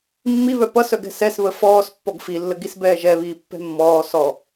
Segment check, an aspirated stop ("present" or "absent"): absent